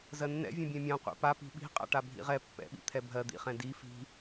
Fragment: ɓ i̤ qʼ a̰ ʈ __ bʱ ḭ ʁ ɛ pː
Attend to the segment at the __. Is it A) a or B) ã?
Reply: A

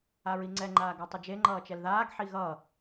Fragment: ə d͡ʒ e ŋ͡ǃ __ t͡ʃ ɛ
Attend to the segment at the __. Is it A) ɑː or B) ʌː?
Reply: B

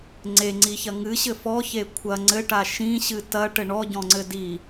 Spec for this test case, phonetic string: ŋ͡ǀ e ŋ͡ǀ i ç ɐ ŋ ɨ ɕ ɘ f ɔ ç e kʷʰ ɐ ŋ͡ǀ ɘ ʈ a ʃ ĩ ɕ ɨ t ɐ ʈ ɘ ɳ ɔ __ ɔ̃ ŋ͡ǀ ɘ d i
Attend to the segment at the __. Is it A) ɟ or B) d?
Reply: A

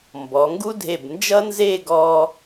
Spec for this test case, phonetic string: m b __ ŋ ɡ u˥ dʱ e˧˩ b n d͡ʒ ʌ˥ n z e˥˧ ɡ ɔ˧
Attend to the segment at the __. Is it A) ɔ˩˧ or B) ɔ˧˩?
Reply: A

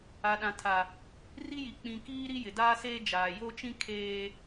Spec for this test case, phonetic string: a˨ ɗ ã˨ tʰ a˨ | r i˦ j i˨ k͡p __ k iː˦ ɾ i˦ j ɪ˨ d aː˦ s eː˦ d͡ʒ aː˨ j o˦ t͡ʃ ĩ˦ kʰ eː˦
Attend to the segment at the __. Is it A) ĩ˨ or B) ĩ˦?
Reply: A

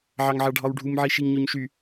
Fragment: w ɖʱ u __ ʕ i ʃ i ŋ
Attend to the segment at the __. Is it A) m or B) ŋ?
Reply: A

